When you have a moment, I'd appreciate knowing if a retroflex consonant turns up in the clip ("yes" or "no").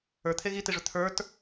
yes